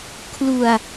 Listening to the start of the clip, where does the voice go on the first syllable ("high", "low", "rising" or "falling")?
low